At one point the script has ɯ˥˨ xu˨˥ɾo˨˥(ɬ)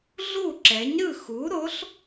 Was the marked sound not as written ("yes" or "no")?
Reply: no